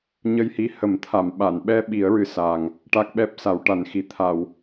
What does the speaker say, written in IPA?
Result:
ɲə˧jhi˧˥hə˨˩˦mt̪ʰa˨˩˨m ɓa˨˩˨nɓɛ˧ ɓi˨˩˦ə̯ ɹɨ˨˩sa˨˩ŋ | ʈa˦˥k̚ɓɛ˦˥p̚ sa˨˩˦wʈa˨˩˦nxi˨˩ t̪ʰa˨˩˨w

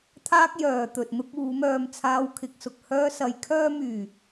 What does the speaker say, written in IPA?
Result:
t̪ʰaː˥k̚ jœː˨t̪ɵ˨t̚ n̪ʊ˥k̚uː˨˥ mœː˧mt͡sʰaː˧wkʰɪ˨˥k̚sʊ˨k̚ hœː˥sɐ˧j kʰœː˧myː˨˩

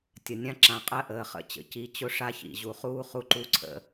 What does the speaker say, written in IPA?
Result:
tʲə˨nʲã˦ǁã˨qʼɜ˦ ʔəː˨χə̰˦˨ t͡ɕə̰˨ ci˨t͡ɕʊ˦ʂa˦ çḭ˨ ʑu˨χuː˦ χu˦ǃu˦ǀʰə̰˦

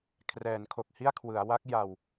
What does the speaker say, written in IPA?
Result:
kʰrɛː˩˦nkʰo˨˩k̚hi˥˩a̯kʰwɯ˩˦a̯ wa˦˥k̚ ja˧w

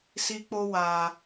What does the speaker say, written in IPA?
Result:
si˧k͡po˧ wa˨

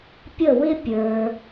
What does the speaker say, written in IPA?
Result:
pʲə˧˩wɪ˧ pʲə˞˩

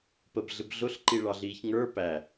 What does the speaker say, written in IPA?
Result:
pəbɮɪb ɮʊɬǃiɭɑɮiːç ŋə˞ pæ

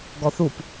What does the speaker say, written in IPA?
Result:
ɡɔθup

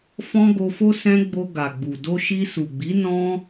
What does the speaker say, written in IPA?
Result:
fɔ̃˦ɡo˧fo˦ sɛ̃˧ ɡ͡bo˧ɡa˨ɡ͡bu˨ do˧ʃi˧su˨ɡ͡bi˨˦ nɔ̃˦

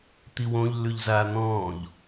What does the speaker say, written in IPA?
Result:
t̪iwõʎlːʉʎzaː n̪ɔ̃ːʎ

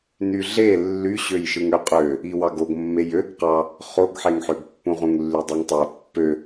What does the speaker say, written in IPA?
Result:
nyɮe lːy ɕøjʃɯŋøqʼø | iwɑɡoɡmːej øɡ qɑ | χoɡħeŋħøɡpːũ ʁũŋlːydˤɯŋtˤæ pːø

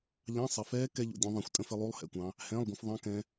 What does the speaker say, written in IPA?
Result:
ʎɑ̃˧˥˧ sˤɪ˨fɛː˦˥ kɛ˦˥ʎṵ˨dʲũ˨˦ðˤɛ̃˨xʷ tʼə̃˦˥fɪ˨˦ lˠu˧˥˧lˠhɛ̰˨kʷɑ̃˨˦ | hɛ̃ː˧˥˧lˠɡʷə̃˨˦f ðˤɑ̃˧˥˧kɛ̃˨˦

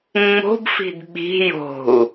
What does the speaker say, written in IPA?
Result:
ŋ͡mo̤bfi̤d ɓi̤ jo̤u̯

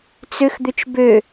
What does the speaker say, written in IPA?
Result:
t͡sʏxd̪ʏt͡ʃ bø

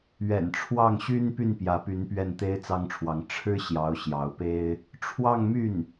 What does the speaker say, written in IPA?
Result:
ɥɛ̰˨˩nʈ͡ʂʰwɑ˥˩ŋɕy˥n py˥˩npjä˧˥py˧˥n pɥɛ˥˩nt̪e˥ɪ̯t͡sɑ˥ŋʈ͡ʂʰwɑ˧˥ŋ ʈ͡ʂʰɻ̩˥ɕjɑ˧˥ʊ̯ ɕjɑ˧˥ʊ̯pe˥ɪ̯ | ʈ͡ʂʰwɑ˥˧ŋmy˥˩n

